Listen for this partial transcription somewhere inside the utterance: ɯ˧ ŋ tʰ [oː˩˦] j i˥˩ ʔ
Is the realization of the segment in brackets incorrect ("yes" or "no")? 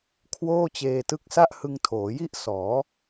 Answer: no